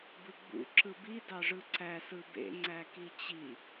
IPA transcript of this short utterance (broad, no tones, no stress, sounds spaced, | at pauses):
b ɯ ɡ͡b ṵ ǁ ɯ b i d ɑ ʐ ɯ ǀ æ s ɯ b ḛ ŋ͡ǀ æ k i t͡ɕ i